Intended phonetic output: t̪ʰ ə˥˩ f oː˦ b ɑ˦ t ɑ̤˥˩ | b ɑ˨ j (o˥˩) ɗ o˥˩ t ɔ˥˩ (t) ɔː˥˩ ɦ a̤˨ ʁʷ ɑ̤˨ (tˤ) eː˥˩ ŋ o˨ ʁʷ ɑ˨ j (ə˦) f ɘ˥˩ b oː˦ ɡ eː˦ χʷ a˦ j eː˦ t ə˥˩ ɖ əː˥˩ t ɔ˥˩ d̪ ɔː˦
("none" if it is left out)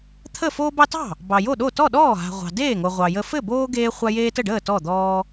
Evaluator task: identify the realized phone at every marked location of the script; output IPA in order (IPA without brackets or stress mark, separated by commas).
o˥˩, ɗ, d, ə˦